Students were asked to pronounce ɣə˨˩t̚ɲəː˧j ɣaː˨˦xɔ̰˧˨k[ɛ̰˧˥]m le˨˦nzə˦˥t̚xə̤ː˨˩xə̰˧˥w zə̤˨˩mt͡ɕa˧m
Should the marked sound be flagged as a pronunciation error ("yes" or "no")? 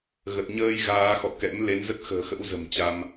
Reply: no